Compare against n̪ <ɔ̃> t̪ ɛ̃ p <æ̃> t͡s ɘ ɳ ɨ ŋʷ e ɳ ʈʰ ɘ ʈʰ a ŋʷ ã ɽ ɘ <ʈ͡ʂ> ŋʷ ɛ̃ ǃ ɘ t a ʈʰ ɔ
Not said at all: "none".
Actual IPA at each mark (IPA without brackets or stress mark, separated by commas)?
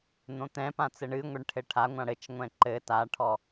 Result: õ, ã, t͡ʃ